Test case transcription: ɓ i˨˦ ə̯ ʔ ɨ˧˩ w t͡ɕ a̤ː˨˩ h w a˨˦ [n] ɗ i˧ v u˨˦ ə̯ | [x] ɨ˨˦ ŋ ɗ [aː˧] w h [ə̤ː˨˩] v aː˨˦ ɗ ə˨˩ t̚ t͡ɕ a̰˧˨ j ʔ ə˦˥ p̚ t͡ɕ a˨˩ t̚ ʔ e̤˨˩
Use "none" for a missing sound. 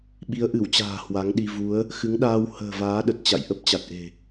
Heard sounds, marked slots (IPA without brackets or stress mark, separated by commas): ŋ, x, aː˧, ə̤ː˨˩